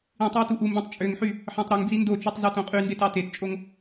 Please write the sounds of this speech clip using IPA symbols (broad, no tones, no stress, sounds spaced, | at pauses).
ĩ tˤ e w t u ʔ u m b ĩ tˤ t͡ʃʼ ø ŋ ħ y | ħ ɑ̃ tˤ ɾ u ŋ d͡z i n d o t͡ʃ y tˤ z u t õ qʼ y n d e t ɑ t e t t͡ʃʼ o ŋ